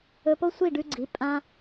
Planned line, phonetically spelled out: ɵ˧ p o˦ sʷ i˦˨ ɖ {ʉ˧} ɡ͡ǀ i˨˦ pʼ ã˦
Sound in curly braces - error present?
no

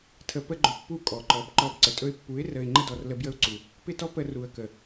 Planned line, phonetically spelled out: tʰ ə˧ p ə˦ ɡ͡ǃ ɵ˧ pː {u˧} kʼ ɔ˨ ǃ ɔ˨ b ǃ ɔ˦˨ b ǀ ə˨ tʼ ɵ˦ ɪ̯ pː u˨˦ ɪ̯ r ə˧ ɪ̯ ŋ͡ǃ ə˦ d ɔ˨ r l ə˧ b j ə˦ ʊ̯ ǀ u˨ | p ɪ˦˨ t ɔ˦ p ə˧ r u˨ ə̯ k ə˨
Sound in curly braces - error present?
yes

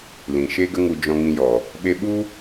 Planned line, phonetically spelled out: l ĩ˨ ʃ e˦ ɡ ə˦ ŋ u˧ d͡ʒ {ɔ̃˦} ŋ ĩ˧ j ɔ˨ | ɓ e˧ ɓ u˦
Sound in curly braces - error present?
yes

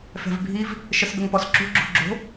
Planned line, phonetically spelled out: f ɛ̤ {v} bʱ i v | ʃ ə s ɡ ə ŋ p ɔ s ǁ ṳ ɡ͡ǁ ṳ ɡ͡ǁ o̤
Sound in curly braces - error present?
no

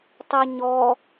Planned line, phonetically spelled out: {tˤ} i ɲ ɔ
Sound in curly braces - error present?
no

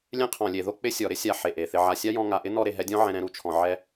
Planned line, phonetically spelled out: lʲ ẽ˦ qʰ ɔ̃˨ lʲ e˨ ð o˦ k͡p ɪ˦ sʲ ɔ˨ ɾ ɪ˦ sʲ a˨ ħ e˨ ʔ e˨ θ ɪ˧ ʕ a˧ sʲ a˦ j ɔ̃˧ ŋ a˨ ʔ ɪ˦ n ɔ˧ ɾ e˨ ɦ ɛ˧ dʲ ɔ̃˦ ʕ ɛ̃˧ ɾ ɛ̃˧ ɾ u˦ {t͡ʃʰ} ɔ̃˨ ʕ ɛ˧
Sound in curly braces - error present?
no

